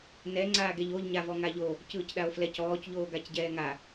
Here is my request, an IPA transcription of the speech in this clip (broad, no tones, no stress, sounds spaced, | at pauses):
n ɛ ŋ͡ǀ aː ɡ ɛ ʎ o ʎ ɲ a v ɔ ŋ a ʎ o | c ɯː c ɗ a o̯ f l ɛ c ɔː c ʎ oː ɡ a c ɟ ɛː ŋ a